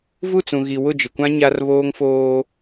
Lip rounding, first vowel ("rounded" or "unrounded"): rounded